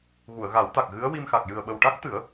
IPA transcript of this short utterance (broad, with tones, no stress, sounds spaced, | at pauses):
ɣ u˨˩˨ ə̯ ɣ a˨˩˦ w t̪ a˨˩ k̚ ɣ ɨ˧˥ ə̯ w i˧ m x a˨˩ k̚ j ɨ˨˩ ə̯ ɓ ə˨˩ w ʈ a˦˥ k̚ t̪ ɨ˨˩˦ ə̯